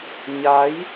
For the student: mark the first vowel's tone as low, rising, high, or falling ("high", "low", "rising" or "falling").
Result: rising